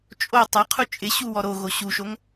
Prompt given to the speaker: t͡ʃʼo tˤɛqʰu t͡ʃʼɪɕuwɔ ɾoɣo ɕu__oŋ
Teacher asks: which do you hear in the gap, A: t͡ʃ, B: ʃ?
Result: B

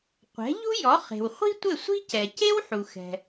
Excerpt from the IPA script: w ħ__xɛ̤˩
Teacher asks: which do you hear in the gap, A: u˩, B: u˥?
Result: A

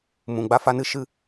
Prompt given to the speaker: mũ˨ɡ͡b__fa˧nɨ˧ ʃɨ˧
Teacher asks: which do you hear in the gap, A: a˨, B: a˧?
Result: B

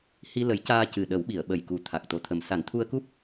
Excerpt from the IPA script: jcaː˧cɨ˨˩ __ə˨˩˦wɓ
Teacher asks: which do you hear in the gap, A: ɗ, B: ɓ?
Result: A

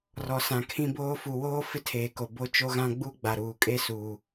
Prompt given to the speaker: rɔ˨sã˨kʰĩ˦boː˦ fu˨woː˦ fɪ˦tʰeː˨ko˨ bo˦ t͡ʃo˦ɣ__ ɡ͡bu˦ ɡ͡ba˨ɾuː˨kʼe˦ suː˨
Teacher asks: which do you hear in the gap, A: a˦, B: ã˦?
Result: B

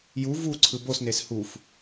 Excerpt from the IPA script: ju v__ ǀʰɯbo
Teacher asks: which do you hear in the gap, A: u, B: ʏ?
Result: A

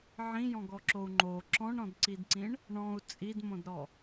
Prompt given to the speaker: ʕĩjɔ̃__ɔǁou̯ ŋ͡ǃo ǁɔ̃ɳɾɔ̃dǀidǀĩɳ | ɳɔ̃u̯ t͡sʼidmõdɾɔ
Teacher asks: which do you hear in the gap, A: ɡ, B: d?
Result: A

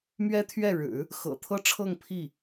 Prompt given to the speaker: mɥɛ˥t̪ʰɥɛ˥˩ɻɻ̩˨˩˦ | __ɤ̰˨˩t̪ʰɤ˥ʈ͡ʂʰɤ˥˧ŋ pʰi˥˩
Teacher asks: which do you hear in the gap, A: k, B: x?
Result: B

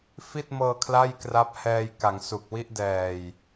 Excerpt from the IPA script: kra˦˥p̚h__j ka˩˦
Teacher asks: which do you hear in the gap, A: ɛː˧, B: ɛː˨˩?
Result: A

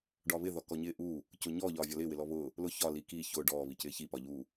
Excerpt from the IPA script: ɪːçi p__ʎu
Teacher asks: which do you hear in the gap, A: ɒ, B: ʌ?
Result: A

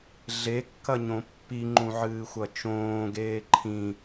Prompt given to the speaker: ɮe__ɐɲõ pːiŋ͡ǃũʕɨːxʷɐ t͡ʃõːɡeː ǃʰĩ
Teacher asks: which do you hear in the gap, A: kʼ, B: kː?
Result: B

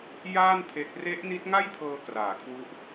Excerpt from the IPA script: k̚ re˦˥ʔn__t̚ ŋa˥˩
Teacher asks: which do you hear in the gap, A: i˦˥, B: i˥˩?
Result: A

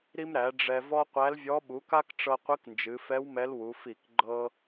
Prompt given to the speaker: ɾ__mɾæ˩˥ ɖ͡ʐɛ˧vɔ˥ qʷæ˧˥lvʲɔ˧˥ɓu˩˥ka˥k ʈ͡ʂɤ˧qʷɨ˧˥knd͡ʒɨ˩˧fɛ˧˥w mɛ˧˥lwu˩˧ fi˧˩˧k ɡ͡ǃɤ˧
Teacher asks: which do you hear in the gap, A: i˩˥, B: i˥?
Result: B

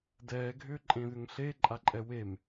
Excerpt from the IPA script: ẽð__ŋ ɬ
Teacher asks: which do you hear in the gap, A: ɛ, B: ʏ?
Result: B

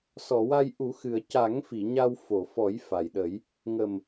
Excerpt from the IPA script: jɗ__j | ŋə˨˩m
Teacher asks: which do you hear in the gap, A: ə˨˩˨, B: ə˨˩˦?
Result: B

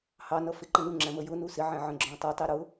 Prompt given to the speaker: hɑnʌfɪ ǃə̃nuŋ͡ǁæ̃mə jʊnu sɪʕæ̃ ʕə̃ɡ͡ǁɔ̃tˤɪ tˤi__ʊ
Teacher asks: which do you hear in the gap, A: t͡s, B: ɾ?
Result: B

